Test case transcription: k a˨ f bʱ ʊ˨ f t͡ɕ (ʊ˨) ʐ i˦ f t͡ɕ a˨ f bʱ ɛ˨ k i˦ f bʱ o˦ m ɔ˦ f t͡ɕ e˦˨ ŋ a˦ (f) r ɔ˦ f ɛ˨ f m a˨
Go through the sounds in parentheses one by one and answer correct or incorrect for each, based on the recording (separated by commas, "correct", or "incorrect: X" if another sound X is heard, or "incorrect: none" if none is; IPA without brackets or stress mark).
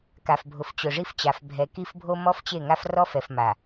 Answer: correct, correct